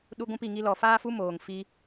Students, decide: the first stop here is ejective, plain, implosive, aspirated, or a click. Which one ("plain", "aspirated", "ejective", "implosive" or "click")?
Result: implosive